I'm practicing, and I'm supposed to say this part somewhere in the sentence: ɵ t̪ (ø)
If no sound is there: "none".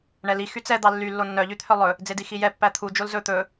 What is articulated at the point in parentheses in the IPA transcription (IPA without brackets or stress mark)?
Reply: ɵ